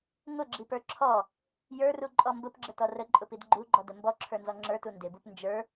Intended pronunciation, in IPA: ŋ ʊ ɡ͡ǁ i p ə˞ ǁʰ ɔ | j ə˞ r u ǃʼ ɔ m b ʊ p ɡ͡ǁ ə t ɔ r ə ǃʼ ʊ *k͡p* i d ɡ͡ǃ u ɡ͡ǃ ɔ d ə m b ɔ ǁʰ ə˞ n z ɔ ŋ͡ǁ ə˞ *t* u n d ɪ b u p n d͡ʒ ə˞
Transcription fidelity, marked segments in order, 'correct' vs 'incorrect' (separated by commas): incorrect, correct